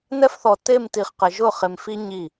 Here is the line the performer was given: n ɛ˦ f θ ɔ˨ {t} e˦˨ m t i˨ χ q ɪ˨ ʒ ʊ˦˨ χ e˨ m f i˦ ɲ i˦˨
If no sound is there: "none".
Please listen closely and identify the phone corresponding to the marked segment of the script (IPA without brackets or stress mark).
t